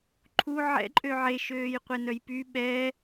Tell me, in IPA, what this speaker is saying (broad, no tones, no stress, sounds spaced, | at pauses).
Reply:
ǃʰ u ʕ ɛ̰ ǃʼ ø ʕ e ʃ øː j qʷ e n œ j p y ɓ ɛ